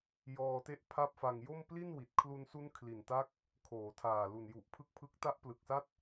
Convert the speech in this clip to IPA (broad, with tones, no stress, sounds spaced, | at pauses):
j ɔː˧ t e˥˩ ʔ pʰ a˥˩ p̚ f a˧ ŋ j o˥˩ m p l i˥˩ n w i˨˩ t̚ kʰ l u˧ n s u˦˥ n kʰ l i˨˩ n t a˦˥ k̚ | kʰ oː˩˦ tʰ aː˨˩ l u˨˩ n j u˨˩ ʔ pʰ ɯ˦˥ k̚ pʰ ɯ˦˥ k̚ t a˦˥ ʔ p l ɯ˨˩ k̚ s a˦˥ t̚